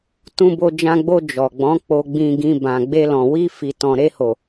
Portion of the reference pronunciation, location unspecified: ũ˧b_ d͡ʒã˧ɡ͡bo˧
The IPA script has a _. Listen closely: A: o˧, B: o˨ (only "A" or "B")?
A